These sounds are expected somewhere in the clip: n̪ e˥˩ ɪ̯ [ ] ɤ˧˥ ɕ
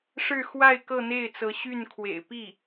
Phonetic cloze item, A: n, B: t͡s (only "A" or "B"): B